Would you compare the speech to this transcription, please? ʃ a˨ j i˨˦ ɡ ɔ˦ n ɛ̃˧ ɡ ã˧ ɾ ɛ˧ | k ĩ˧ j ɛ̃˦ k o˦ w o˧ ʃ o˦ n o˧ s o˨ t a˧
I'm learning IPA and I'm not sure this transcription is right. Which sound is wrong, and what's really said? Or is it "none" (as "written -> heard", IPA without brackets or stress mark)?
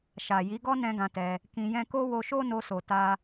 ɾ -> t